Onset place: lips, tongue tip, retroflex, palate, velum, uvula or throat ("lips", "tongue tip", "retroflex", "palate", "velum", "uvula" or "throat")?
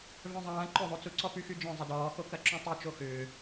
lips